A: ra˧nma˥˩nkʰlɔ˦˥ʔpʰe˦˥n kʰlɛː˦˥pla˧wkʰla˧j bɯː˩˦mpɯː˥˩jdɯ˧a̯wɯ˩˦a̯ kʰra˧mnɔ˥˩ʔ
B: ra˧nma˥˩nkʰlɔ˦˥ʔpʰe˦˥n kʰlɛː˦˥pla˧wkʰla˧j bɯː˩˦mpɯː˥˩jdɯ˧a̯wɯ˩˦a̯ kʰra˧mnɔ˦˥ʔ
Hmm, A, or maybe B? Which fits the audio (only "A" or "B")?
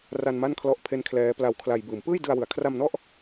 A